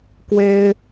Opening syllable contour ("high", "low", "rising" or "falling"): high